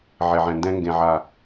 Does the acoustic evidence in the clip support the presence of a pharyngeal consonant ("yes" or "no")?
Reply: yes